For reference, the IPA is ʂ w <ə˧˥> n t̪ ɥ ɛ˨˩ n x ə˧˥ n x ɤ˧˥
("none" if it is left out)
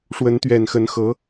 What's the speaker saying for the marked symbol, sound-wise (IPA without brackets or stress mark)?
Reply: ə˧˥